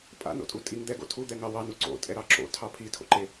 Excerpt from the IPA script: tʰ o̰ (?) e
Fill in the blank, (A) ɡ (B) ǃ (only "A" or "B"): B